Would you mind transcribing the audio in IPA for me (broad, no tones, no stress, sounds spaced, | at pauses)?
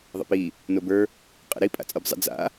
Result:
ðˤ ə̰ p i | n o b ə˞ | qʼ ə̰ ɾ i pʼ a̰ t͡sʼ ə˞ b zˤ ə̰ d͡z a̰